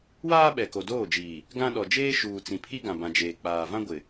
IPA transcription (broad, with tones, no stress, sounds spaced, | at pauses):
w aː˦ ɓ ɛ˨ k o˨ d oː˦˨ d͡ʒ iː˨ | ɡ ã˦ ɗ ɔ˨ d͡ʒ eː˦ ʃ uː˨ t͡s ĩ˨ pʰ i˦ ɡ ã˨ b ã˨ d͡ʒ eː˨ k͡p aː˨ v ã˦ ɡʷ ɪ˨